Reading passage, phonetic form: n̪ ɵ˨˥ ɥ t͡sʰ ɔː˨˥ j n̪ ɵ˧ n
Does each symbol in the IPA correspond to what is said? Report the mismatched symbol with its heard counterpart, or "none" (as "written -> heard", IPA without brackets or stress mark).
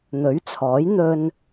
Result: none